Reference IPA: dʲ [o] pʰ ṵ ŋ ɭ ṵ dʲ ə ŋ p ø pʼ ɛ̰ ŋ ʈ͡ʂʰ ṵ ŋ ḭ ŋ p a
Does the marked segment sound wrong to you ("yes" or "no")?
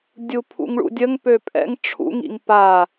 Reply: yes